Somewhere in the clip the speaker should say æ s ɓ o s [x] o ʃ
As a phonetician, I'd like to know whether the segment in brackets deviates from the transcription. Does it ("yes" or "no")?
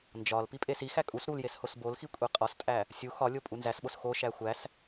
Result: no